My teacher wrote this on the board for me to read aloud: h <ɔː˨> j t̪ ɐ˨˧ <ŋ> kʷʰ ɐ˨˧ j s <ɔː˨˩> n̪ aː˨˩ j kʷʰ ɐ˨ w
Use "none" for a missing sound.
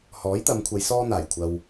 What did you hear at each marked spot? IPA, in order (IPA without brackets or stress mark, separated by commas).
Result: ɔː˨˥, m, ɔː˥